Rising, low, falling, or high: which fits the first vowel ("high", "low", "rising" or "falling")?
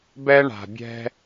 high